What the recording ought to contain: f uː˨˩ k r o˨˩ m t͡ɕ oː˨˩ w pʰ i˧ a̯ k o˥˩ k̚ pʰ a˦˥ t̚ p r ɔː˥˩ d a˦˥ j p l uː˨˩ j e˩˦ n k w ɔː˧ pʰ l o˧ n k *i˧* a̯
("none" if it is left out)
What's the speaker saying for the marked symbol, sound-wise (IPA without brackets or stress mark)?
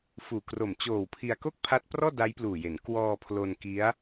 i˦˥